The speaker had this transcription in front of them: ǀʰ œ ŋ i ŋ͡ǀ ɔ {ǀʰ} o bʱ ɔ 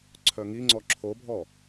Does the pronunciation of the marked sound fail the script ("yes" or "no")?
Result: yes